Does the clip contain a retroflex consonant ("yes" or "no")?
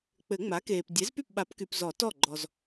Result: no